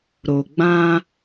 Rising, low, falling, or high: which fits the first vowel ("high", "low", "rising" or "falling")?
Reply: low